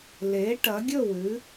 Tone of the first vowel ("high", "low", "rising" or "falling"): rising